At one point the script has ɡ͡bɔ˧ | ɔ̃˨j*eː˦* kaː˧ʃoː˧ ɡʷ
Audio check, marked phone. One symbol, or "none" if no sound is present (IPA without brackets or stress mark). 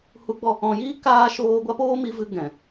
iː˦